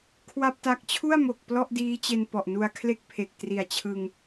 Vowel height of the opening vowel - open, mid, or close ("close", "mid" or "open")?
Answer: open